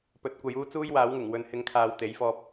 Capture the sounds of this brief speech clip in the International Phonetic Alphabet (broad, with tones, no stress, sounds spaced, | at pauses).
p ɵ˨˥ t̚ kʷ ɐ˨˧ j uː˥ t͡s uː˥ j w aː˨˥ w ŋ ɪ˨˩ ŋ w ɵ˨˥ n h ɪ˨˥ ŋ kʰ aː˨ w t̪ e˨˥ j f ɔː˧ p̚